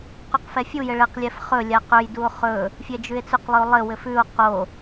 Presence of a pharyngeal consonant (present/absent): absent